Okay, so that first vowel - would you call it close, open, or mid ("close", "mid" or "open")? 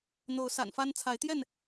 mid